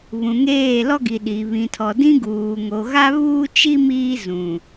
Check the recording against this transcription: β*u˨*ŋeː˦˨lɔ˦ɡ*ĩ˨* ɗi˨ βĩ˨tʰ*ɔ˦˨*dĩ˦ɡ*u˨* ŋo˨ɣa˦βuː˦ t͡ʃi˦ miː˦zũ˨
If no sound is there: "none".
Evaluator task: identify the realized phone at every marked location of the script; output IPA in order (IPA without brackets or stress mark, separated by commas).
ũ˨, i˨, ɔ˨, uː˨